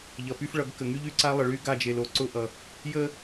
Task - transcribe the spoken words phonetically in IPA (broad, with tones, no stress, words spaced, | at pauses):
ʎʌ˨py˦fɭʌ˨˦ɡkə˨ ŋy˦ʎy˦ǀa˦ lˠə˨ɭy˦ɡa˦˨d͡ʒe˨l o˨ ǀʊ˦ʔʌ˨ | jə˦